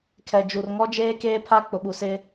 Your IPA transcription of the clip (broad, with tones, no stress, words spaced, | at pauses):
kʰɛ˨d͡ʒu˨rŋɔ˦d͡ʒeː˦ keː˦pʰa˦ k͡pʊ˨ɓu˨ sɪ˦